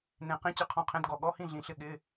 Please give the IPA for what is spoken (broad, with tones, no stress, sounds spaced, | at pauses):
n ẽ˨˩ q ĩ˧˥˧ t͡ɕ ɪ˧˥˧ qʰ ɔ̃˧˥˧ qʰ ẽ˧˥˧ d ɡ ɔ˨˩ ɠ ɔ˧˥˧ h ĩ˥˨ ɮ ĩ˨˩ ɬ ɪ˥˨ ɠ ɪ˧˥˧